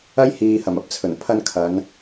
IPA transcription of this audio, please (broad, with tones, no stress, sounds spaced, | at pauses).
ɐ˥ j h iː˨ h ɐ˨˩ m ɐ˧ p̚ t͡sʰ ɵ˨˩ n pʰ ɐ˧ n kʰ ɐ˨˧ n